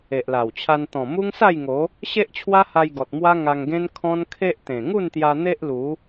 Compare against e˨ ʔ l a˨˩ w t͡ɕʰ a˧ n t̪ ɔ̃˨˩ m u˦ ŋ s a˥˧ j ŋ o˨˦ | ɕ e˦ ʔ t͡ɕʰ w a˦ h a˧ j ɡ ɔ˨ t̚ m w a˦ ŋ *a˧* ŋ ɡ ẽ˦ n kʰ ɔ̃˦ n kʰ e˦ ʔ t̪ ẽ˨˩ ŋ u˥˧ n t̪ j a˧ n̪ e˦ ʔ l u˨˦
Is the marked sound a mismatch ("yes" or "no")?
no